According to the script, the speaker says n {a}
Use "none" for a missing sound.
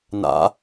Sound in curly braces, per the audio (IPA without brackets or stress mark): a̰